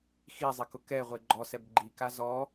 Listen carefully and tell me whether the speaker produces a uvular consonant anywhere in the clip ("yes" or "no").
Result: yes